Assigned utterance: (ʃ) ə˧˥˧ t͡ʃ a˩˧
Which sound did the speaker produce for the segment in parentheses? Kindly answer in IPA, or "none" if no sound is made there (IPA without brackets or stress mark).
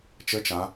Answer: t͡ʃ